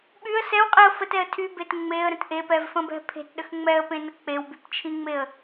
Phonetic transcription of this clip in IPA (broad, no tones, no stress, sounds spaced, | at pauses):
ɓ y ə̯ s ɛ w qʼ i ə̯ f ə t ɛ ə̯ tʰ y b e t ŋ͡m e ə̯ ɾ ə̃ t ʔ e p ɛ v f ə̃ b ɛ̤ pʰ e̤ t ɗ ə x ŋ͡m ɛ ə̯ p ẽ n ə k͡p e w b y p t͡ʃʰ ĩ ŋ͡m e ə̯